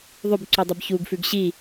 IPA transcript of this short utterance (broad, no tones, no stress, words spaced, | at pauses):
ðˤʉbǀudˤɨb çuɡfʉɡ ɕi